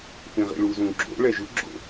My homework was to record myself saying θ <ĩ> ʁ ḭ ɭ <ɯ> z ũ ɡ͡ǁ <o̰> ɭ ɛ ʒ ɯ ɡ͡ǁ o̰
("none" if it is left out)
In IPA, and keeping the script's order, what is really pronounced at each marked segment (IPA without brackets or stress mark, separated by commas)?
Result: ĩ, u, o̰